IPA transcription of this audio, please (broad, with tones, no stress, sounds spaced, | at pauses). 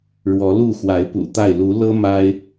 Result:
ɻ w ɔ˨˦ l u˥˨ x w a˨˦ ɪ̯ p ṵ˨˩ t̪ a˥˨ ɪ̯ l u˨˦ l ɤ˦ m a˦ ɪ̯